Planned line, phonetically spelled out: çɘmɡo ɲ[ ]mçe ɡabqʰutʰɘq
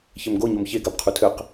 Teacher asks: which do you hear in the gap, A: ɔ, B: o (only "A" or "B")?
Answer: B